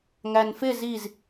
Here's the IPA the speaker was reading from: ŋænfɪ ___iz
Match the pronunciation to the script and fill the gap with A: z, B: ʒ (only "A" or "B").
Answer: A